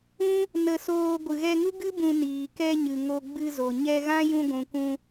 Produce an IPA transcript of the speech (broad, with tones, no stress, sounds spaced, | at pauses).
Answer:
ũ˦ | n ə˧ s oː˧ ɡʷ ɨ˨ ɣ ɛ˧ ŋ u˦ ɡ ɨ˦ b ũ˧ n iː˨ k ɛ˧ ɲ ɨ˨ ŋ o˧ ɡ͡b ɨ˧ z o˨ ɲ ɛ˧ ɣ ã˦ j ũ˧ ɡʷ ũ˨ k ũ˧